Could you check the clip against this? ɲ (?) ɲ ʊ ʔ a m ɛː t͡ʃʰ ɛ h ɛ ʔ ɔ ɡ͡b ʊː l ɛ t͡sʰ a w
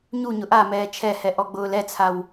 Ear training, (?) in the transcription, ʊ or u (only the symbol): u